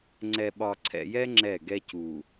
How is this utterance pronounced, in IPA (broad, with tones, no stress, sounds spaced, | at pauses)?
ŋ͡ǀ ɛ˨ ɓ ɒ˨ ǀʰ ɛ̰˨ j ɛ˦ ŋ͡ǁ ɛ˦˨ ɡ ɛ˦ c u˨